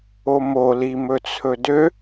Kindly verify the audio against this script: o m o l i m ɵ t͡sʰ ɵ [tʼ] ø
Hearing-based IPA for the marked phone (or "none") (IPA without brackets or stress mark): d